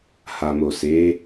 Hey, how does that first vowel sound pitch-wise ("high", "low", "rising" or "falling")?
low